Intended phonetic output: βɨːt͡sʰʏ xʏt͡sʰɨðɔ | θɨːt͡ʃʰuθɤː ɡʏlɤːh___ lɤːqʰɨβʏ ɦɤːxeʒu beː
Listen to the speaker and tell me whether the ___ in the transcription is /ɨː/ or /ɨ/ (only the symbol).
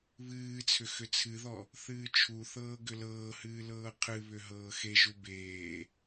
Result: ɨː